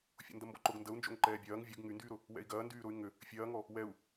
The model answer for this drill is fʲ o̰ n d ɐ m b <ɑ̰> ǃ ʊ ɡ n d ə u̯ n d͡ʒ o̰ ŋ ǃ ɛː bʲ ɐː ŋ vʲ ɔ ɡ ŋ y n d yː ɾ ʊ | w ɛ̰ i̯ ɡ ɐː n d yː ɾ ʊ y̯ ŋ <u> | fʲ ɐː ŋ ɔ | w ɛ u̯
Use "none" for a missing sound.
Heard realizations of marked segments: ɔ̰, ʏ

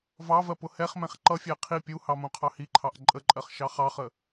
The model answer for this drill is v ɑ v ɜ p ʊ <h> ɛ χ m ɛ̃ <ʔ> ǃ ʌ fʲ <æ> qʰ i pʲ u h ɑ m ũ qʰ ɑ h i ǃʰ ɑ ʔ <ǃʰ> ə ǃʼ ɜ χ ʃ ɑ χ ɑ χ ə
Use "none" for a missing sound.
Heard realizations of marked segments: h, χ, æ, ǃʼ

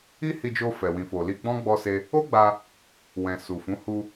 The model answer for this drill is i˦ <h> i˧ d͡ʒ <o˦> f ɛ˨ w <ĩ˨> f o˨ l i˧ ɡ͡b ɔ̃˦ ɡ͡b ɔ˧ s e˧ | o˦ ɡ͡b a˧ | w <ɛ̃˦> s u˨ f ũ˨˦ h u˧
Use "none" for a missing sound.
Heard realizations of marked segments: h, o˧, ĩ˨, ɛ̃˨

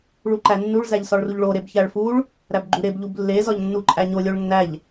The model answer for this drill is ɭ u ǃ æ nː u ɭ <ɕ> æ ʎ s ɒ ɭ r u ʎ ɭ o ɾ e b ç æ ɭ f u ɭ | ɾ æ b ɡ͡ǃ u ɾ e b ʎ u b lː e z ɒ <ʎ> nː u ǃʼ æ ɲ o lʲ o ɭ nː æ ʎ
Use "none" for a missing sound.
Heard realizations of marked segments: z, ʎ

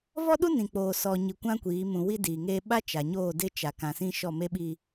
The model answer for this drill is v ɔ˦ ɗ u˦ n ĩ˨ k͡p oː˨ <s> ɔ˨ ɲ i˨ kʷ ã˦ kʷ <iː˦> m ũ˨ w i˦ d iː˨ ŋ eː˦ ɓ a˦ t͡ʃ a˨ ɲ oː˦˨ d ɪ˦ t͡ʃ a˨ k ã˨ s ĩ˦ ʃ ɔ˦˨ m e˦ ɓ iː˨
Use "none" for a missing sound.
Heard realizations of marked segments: s, iː˨˦

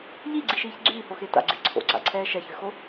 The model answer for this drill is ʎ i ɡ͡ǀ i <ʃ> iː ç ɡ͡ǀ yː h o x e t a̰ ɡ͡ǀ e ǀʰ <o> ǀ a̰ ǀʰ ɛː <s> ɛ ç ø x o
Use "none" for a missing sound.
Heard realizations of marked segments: ʃ, o̰, ʃ

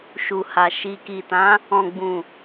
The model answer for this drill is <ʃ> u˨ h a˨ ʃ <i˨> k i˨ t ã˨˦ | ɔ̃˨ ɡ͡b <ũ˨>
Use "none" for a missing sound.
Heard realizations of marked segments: ʃ, i˨, ũ˨

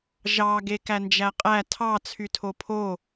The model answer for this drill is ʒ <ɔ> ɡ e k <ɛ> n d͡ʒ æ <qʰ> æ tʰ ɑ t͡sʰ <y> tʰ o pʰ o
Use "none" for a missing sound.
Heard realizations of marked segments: ɑ, æ, qʼ, y

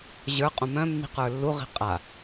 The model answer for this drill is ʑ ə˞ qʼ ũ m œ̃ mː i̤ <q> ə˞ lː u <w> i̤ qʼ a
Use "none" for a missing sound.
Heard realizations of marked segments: q, ʁ

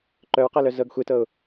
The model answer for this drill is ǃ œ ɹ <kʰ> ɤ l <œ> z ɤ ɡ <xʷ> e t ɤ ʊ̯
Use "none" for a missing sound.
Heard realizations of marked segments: q, œ, xʷ

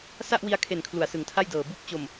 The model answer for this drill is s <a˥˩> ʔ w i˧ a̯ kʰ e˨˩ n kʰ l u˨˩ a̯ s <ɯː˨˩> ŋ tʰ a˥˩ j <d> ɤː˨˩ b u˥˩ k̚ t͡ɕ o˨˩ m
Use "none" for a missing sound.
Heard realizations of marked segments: a˥˩, ɯ˨˩, d

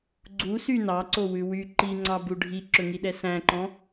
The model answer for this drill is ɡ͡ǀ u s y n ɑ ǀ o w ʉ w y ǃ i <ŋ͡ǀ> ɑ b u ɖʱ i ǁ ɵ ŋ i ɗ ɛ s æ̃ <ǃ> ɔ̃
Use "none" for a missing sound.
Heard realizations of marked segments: ŋ͡ǀ, ǃ

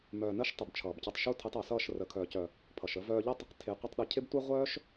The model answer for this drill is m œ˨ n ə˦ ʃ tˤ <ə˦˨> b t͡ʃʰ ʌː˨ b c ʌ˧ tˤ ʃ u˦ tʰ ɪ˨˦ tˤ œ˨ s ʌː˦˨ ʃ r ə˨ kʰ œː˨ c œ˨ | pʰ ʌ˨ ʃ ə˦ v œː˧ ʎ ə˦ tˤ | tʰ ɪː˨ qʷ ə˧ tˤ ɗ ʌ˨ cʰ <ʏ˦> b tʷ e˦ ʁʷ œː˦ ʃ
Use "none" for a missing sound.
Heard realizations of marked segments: ə˨, ɪ˦

